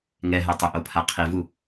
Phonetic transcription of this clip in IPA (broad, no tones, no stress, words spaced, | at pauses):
ŋɛɦɛ tˤʊʔopʰa qʰivu